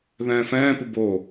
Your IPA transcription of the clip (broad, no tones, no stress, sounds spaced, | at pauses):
ð ɛ̃ː f ɛ̃ː p u b o